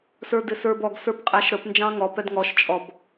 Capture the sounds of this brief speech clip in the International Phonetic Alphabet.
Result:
s ə˞ d ɪ s ə˞ b ɔ ɡ s ə˞ p qʼ æ ʃ ɾ ə p n d͡ʒ ɑ̃ ŋ ɔ p ɛ d ŋ ɔ ʃ t͡ʃʼ ɔ b

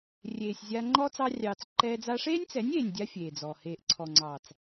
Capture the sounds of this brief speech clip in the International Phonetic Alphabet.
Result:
rʲ eː˨ sʲ zʲ a˧ ŋ͡ǃ ɔ˦ t͡s ɑ˧ rʲ ɑː˨ t͡s ǃ ɛː˧ d͡z a˧ ʂ eː˦ nʲ t͡s ɛ˨˦ nʲ eː˨ nʲ dʲ a˦ fʲ eː˨ d͡z ɔ˨ h eː˨ ʔ ǀʰ ɔ˨ ŋ͡ǀ ɑː˨ t͡s

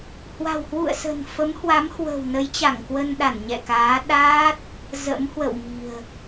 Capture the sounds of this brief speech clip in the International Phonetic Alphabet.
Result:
h w a̤˨˩ w h w ṵ˧˨ ə̯ s ə̤˨˩ n f ə˨˦ m h w a˨˦ m h w ə̤˨˩ w n ə˨˦ j t͡ɕ a˧˩ ŋ k w ə˧ n ɗ a˧˩ n ɲ ɛ̰˧˨ k aː˨˦ ɗ aː˦˥ t̚ | z ə̰˧˥ m h w ə̰˧˨ w m i̤˨˩ ə̯

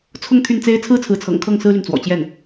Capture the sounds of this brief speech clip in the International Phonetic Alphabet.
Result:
t͡sʰ ʊ˥˧ ŋ t̪ʰ y˥˩ n t͡s e˥ ɪ̯ t͡sʰ ɹ̩˥ t͡sʰ ɹ̩˧˥ t͡sʰ ɤ̰˨˩ ŋ kʰ ɤ˥˩ ŋ s ɹ̩˥ l y˨ n t͡s w ɔ̰˨˩ t͡ɕ j ɛ˥˩ n

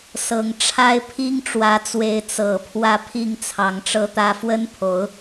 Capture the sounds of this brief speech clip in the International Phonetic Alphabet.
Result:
s ɤ˨˩ ŋ ʈ͡ʂʰ a˦ ɪ̯ pʰ i˦ ŋ ʈ͡ʂ w ä˨˦ t͡s w e˨˦ ɪ̯ t͡s ɤ˨˩ pʰ w ä˦ pʰ i˥˨ ŋ t͡sʰ ɑ˨˦ ŋ ʈ͡ʂ ɤ˥˨ t̪ ä˦ f w ə˦ n pʰ o˨˦ ʊ̯

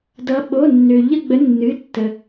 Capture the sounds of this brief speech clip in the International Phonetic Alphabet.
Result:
d ʌ˨˦ ɓ o˩˧˩ nː ø˩ ʎ ə˦˨ ɡ͡b ə˨˦ nː ɨ˩˧˩ tː ə˩

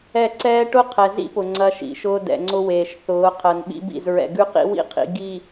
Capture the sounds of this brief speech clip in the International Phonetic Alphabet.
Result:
ɛ˦˨ ǀ ɛː˦ ʈ ʊ˦ qʰ ɛ˨ z ḭ˦ p ʊ˨ ŋ͡ǀ ɐ˦ ʃ ḭ˨ ʃ ʊː˦ d ɛ̰˨ ŋ͡ǀ ʊ˦ w eː˨ ʃ θ ʊː˨˦ qʰ ɜ˨ n ɓ ḭ˦ b ḭ˦˨ z ɹ ɛ̰˨ ɡ ʉ˦ q ḭ˦ w ḭ˦ qʰ ḭ˨ ɡ i˨

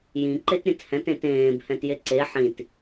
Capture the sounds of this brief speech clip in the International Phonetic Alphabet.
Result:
j ĩ ǃ e t ɾʲ ɛ̃ t h ɛ̃ t ẽ t ẽː b h ɛ̃ t j e ǀ e ħ ĩ t

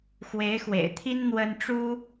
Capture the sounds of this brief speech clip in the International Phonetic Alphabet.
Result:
x w e˧˥ ɪ̯ x w ḛ˨˩ ɪ̯ t̪ʰ i˥ n n̪ w ə˥ n ʈ͡ʂ u˥

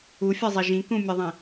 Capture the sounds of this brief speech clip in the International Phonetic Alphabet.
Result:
u fʲ ɤ zˤ i ʒ ĩ k ũ mʲ ɯ ðˤ ĩ

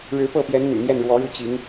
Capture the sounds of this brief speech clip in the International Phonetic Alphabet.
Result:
ɻ ɻ̩˧˥ p ɤ˥˩ p j ɛ˧˥ n n̪ y̰˨˩ n̪ j ɛ˥˩ n ɻ w ɔ˧˥ ɻ u˥˩ t͡ɕ i˧˥ ŋ

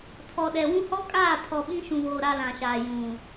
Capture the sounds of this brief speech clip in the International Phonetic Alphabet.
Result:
tʰ ɔ˨ ɗ ɛ˨ w ũ˦ h ɔ˦ kʼ aː˦˨ pʰ ɔ˨ ɓ ĩ˦ ʃ ũ˨ β oː˨ ɾ a˦ l ã˨ ʃ aː˨ j ũ˨

